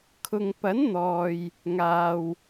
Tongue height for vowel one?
high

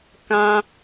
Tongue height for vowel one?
low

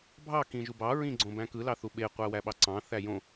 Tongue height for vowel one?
low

